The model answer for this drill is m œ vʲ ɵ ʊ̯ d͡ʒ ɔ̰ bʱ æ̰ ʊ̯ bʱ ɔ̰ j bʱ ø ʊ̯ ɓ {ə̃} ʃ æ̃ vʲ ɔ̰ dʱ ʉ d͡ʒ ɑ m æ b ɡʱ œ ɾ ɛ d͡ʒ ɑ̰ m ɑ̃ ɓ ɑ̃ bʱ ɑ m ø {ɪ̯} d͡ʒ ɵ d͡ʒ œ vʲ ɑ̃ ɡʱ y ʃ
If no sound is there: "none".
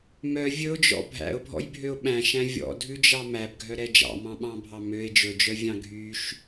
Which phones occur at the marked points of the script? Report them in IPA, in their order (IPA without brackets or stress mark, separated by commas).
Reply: æ̃, ɪ̯